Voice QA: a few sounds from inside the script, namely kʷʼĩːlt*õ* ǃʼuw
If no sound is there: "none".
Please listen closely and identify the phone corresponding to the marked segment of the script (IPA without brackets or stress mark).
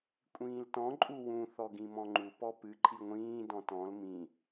ɔ̃